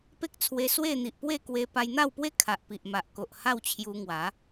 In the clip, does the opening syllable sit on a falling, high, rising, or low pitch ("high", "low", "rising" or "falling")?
high